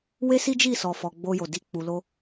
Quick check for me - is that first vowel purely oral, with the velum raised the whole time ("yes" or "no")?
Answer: yes